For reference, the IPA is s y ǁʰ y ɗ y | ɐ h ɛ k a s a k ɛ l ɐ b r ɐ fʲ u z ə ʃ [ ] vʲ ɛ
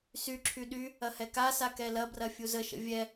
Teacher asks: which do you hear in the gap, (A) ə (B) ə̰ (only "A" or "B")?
B